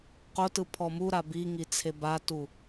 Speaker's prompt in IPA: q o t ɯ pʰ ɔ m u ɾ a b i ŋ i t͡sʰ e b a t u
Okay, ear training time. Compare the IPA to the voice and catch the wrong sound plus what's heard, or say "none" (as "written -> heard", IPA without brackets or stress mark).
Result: none